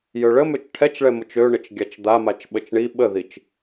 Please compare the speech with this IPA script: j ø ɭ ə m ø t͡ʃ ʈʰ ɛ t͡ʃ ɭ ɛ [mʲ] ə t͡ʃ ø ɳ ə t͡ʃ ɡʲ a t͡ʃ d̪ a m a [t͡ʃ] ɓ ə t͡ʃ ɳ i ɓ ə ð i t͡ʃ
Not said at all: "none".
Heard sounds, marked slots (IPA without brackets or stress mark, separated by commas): m, t͡ʃ